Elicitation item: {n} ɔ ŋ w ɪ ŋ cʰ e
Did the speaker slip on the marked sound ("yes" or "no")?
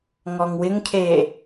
yes